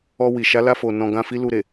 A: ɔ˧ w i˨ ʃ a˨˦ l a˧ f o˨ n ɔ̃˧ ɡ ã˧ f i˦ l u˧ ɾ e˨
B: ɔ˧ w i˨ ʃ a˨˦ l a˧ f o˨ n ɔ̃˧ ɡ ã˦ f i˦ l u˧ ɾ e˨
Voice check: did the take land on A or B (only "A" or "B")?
B